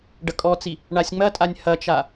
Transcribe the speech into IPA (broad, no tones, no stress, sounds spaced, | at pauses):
ɖ ɐ kʼ ɔ t͡s i | ɳ a sʲ ŋ͡m ɐ tʼ a nʲ h ɐ t͡ʃ a